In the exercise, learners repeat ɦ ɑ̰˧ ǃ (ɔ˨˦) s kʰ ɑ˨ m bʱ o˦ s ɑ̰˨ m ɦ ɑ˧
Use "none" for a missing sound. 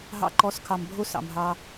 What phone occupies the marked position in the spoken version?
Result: ɔ˨˦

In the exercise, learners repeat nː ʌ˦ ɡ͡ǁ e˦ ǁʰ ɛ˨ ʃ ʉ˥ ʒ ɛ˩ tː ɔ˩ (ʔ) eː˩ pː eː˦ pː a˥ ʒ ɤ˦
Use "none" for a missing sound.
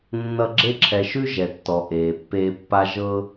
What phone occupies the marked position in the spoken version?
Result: ʔ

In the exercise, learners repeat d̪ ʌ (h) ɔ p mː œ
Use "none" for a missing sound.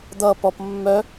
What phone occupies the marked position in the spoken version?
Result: p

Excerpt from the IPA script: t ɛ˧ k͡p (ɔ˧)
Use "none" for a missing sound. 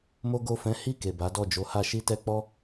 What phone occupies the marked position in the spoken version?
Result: ɔ˦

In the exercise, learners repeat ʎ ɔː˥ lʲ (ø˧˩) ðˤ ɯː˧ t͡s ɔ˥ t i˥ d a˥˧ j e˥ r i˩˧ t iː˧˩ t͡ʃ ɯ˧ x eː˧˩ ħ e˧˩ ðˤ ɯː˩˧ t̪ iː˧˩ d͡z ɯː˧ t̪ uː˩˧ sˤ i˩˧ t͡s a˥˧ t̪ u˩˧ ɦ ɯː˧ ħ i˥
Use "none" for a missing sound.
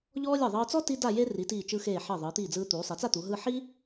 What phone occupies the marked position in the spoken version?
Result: e˧˩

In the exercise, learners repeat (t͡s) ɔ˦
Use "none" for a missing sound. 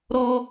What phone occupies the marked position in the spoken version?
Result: ɾ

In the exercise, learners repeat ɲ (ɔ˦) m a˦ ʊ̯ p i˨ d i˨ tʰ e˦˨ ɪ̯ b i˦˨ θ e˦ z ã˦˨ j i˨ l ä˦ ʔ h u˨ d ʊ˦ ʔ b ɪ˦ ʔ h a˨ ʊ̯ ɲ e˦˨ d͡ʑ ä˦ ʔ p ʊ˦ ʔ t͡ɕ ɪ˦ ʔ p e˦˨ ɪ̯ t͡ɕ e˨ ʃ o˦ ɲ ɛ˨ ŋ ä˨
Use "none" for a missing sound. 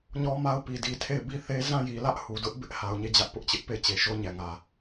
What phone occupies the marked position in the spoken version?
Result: ɔ˦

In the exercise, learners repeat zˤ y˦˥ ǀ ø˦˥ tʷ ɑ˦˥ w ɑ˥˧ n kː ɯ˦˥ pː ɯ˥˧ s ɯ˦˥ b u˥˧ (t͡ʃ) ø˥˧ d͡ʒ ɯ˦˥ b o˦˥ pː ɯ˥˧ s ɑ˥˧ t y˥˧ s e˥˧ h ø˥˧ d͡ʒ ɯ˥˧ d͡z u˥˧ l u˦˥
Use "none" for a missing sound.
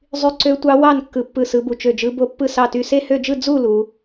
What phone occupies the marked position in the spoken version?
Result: t͡ʃ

